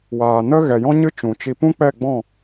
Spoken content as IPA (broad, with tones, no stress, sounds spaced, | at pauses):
w aː˨ n ə˦ ɣ ɛ˨ j ɔ̃˦ ɲ ɨ˦ t͡ʃ ũ˨ t͡ʃ i˧ p ũ˦ k͡p ɛ˦˨ ɡ͡b ɔ̃˦˨